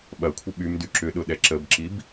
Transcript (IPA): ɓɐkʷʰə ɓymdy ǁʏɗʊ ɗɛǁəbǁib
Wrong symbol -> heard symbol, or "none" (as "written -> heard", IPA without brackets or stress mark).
none